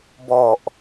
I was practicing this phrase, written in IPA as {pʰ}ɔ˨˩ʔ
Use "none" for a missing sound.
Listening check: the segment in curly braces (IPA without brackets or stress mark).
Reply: b